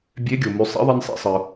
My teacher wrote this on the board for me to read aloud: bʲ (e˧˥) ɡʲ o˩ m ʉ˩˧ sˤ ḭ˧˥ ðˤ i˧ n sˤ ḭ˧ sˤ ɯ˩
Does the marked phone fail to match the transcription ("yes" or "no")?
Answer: no